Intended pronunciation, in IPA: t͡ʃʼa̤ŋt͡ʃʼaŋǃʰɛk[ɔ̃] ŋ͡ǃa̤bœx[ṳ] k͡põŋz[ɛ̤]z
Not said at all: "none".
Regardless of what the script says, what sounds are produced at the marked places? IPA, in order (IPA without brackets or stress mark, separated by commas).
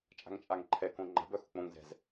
õ, ṳ, ɛ̤